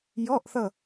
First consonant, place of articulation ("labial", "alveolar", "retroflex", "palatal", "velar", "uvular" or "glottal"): palatal